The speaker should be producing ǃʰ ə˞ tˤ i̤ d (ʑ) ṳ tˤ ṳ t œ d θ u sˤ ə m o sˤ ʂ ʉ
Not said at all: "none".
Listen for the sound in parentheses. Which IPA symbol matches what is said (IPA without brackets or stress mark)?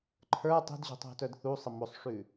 ʑ